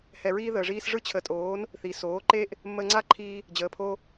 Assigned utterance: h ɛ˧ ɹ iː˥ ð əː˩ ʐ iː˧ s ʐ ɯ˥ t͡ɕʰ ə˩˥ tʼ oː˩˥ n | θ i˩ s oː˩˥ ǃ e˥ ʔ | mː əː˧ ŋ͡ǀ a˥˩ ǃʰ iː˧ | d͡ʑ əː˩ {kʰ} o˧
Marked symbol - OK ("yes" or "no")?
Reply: no